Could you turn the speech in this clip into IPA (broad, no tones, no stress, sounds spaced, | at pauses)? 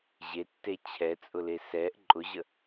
ʑ e tː e t͡ɕʰ ɛ t͡sʼ ʊ l e s ɛ ʔ ǃʼ ʊ ʑ ə